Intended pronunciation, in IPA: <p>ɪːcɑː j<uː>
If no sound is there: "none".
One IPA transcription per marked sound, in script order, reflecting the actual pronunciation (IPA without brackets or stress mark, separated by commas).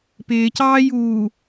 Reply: p, uː